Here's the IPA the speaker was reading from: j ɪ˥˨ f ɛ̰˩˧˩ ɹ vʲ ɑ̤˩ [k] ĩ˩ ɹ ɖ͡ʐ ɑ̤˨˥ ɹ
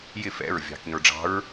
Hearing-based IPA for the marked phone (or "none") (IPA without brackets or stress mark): k